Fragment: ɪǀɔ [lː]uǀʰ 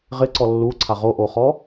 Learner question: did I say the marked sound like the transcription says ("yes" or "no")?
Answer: yes